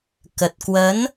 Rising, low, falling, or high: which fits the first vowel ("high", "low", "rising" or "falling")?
low